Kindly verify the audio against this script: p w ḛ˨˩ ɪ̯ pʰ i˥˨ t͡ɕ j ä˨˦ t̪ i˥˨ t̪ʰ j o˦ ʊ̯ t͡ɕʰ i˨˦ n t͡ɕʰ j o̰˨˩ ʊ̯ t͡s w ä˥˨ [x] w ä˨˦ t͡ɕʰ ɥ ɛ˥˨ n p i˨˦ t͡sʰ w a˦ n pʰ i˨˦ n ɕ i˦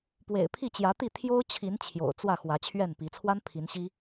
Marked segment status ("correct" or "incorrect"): correct